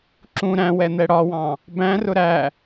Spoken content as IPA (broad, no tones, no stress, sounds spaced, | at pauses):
ǁ ũ ɾ æ̃ w ɛ n̪ ɛ ɽ ɒ w ɑ̃ | b æ̃ r ʊ ɾ æ